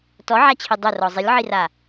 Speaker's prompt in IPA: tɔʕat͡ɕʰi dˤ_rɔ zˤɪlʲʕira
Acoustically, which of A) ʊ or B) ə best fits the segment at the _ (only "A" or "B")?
A